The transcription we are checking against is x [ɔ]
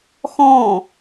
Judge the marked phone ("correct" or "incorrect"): incorrect